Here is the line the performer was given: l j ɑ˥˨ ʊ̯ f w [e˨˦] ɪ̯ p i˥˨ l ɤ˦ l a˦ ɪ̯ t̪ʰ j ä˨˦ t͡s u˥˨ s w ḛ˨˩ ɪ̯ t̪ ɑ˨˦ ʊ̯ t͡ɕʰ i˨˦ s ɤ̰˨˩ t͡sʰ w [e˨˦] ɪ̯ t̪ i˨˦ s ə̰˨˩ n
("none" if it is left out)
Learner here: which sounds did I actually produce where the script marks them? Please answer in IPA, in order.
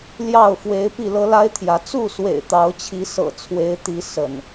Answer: e˨˦, e˨˦

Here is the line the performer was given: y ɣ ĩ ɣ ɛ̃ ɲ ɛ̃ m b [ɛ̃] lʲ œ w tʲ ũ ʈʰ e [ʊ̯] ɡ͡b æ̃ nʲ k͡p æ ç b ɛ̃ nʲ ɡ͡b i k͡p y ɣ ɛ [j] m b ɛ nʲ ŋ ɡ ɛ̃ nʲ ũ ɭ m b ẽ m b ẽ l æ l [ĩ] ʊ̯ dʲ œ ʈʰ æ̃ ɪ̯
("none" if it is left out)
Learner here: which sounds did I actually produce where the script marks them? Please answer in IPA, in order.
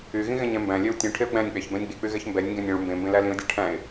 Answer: æ̃, ʊ̯, ç, ĩ

